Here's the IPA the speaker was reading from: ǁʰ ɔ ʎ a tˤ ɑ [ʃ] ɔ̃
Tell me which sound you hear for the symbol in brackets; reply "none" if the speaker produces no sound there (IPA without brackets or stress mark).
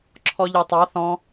θ